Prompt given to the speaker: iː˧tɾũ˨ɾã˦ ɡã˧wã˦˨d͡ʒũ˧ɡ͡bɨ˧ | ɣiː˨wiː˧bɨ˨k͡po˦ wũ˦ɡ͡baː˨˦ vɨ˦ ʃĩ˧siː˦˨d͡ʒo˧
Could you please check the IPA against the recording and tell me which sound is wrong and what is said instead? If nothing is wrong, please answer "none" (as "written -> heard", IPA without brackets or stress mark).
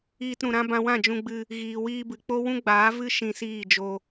ɡ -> b